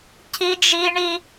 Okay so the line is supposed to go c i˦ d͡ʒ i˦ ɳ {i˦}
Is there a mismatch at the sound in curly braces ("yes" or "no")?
no